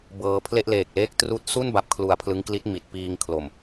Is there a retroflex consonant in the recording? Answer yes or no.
no